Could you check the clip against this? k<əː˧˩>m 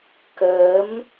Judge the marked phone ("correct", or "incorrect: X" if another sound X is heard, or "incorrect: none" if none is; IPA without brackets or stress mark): incorrect: əː˨˦